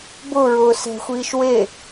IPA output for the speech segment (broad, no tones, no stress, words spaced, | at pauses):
bʊɹʊː sɛ̤xʷiːʃ we